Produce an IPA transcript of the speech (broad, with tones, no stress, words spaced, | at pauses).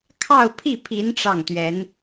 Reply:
kʰɑ˥˧ʊ̯pʰi˥˩pʰi˧˥n ʈ͡ʂɑ˥˩ŋt̪ɥɛ˧˥n